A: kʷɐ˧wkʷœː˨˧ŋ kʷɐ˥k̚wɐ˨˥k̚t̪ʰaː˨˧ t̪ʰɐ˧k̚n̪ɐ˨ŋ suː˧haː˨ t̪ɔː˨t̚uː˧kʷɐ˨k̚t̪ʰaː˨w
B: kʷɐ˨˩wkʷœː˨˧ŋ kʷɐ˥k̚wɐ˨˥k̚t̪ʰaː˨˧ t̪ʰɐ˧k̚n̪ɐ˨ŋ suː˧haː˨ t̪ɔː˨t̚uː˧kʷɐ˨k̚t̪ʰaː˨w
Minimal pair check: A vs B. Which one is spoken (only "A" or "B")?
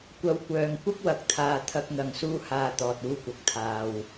A